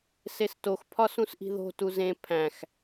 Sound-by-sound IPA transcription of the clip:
s e s t o x pʰ ɒ s ũ s ʔ i̤ ð o̤ t u z ẽ pʰ æ̃ x

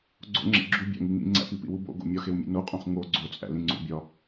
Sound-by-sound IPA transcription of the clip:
ɡ͡ǀ o̰ ŋ͡ǁ ḛ ɡ͡ǁ u bʲ æ̰ ŋ i ŋ ḭ ŋ͡ǀ æ̰ p i p ḭ w u b o̰ ɡ o̰ mʲ ɒ x e w mʲ ḛ n o qʼ ũ χ ŋ o ɡ͡ǀ o t͡sʼ æ̰ l ĩ ŋ͡ǀ ṵ bʲ ɒ

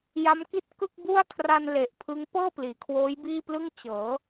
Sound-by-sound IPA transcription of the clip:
j a˦˥ m k i˥˩ t̚ k ɯ˥˩ k̚ b u˥˩ a̯ kʰ r a˧ n l e˨˩ ʔ pʰ ɯ˦˥ ŋ p ɤː˥˩ p l iː˩˦ kʰ w oː˦˥ j b iː˥˩ p l ɯ˥˩ ŋ t͡ɕ ɤː˩˦

